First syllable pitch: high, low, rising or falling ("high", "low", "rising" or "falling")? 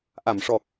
low